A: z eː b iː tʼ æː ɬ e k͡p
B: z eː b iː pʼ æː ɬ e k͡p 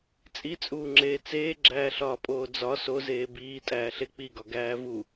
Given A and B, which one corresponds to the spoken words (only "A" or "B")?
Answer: A